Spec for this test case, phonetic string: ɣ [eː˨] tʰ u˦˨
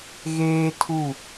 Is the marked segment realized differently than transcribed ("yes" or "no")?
yes